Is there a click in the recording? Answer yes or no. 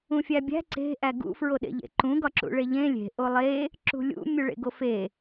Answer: yes